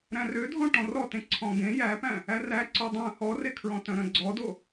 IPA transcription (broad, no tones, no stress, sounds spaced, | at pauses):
ɾ æ̃ r ø dʱ ɔ̃ ʈ ɔ̃ r ɔ t ẽ ǀʰ ɔ̃ ɡ ẽ j æ p æ̃ | æ r æ ǀ œ dˤ œ̃ h ɔ r e kʰ ɹ ɔ̃ t œ̃ ɾ œ̃ ɡ͡ǀ ɔ d o